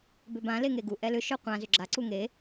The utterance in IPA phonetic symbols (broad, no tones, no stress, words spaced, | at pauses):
bʏbã leŋeɡu ʔɛlʏ ʃœqʷã zʏɡ͡ǁa ǀuŋe